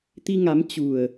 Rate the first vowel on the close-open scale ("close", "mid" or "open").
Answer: close